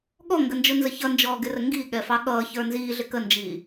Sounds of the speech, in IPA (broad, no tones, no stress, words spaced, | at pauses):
ɠɔŋɡənd͡ʒʊnzə çʌnd͡ʒɔːɡɪrə ŋɡiɠɛfɑ ɠʌːçə˞ nziːɮɪ kənd͡ʒiː